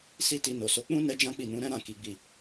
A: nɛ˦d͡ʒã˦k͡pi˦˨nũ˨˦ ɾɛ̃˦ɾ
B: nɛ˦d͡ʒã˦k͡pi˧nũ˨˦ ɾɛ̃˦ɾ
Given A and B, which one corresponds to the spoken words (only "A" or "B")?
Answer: A